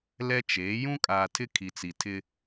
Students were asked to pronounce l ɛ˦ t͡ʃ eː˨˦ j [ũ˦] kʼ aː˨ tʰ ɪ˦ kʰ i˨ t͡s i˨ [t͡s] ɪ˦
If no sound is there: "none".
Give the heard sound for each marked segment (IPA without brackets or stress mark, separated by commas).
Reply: ũ˦, tʰ